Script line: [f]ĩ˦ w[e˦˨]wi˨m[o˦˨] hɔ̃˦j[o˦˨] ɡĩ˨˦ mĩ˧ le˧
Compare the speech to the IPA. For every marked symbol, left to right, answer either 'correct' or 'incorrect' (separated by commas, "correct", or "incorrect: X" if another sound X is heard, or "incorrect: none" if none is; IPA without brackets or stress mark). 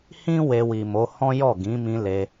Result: incorrect: h, incorrect: e˧, incorrect: o˨˦, incorrect: ɔ˦˨